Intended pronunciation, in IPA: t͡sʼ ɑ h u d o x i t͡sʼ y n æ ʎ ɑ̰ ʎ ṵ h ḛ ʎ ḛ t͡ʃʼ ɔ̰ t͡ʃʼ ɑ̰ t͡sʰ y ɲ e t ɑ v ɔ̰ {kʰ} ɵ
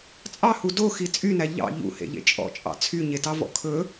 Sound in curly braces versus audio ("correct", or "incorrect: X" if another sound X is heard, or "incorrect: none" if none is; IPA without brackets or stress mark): correct